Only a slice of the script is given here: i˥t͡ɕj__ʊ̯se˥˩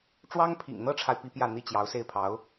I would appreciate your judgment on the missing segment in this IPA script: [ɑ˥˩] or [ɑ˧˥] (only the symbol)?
ɑ˧˥